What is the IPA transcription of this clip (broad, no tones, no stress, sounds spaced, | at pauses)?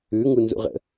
ʉ ŋ u n z ṵ ʁ ə̰